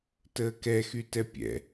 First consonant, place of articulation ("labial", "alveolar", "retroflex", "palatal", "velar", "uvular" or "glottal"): alveolar